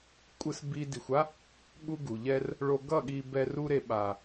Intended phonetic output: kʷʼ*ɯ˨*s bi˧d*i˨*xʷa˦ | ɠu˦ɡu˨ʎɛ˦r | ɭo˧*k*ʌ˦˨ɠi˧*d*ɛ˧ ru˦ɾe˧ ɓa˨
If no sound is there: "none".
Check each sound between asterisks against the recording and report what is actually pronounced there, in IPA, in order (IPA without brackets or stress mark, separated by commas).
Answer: ɯ˧, i˨, ɡ, b